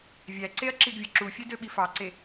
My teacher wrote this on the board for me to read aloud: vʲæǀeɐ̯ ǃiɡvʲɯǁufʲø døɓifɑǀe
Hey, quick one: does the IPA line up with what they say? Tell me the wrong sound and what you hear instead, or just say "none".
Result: ǃ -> ǁ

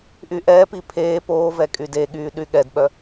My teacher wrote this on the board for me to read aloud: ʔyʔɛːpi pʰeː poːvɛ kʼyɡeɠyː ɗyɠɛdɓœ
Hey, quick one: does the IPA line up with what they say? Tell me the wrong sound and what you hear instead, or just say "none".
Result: ɡ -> d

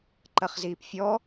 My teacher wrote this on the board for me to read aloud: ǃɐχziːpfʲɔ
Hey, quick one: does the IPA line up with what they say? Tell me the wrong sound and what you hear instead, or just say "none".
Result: none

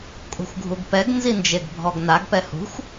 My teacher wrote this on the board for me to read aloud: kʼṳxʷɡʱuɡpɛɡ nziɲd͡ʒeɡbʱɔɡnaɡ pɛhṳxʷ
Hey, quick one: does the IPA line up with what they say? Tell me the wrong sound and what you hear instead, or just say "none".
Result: ɲ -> n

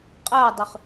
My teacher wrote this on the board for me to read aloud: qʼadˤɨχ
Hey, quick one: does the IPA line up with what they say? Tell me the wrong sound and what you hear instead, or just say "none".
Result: none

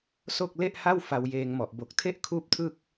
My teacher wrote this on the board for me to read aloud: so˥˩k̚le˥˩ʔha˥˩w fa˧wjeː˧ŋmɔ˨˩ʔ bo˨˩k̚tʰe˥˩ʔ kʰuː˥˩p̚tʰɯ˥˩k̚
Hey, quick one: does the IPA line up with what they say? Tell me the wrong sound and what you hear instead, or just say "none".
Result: none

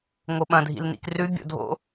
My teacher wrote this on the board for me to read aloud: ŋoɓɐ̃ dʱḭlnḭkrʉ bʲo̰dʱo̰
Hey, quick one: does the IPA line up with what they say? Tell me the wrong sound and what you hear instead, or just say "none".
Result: none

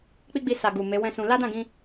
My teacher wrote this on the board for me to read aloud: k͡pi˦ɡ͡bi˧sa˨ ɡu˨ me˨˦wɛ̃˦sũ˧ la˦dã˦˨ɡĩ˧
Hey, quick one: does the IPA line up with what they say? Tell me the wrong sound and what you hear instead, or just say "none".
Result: none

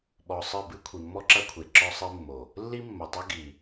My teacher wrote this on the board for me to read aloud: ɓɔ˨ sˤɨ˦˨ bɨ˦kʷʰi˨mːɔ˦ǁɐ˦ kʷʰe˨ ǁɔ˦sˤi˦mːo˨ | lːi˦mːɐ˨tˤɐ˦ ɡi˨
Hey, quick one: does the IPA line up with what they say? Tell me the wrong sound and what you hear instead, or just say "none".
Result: none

